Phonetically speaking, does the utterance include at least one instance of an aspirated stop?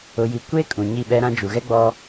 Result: no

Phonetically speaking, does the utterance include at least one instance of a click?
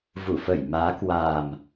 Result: no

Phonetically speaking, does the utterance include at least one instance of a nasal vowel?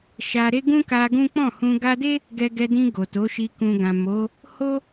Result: yes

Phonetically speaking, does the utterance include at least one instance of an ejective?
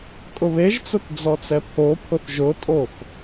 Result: yes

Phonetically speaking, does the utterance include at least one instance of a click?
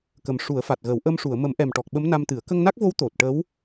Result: no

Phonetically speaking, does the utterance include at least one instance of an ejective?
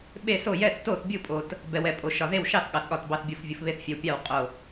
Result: yes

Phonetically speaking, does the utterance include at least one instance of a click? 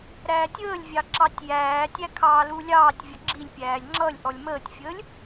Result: yes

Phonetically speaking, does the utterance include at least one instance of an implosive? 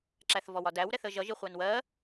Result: no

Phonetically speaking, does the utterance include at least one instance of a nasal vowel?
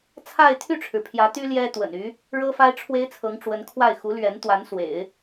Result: no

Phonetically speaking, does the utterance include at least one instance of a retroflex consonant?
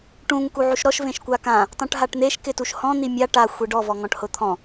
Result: yes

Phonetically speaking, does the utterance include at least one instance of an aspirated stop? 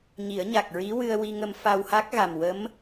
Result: no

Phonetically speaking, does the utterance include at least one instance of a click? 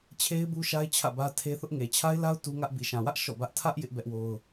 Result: no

